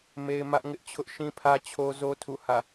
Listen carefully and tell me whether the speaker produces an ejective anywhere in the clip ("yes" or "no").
no